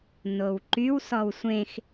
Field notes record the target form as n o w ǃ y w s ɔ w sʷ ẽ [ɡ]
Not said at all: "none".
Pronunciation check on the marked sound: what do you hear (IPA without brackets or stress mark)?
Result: x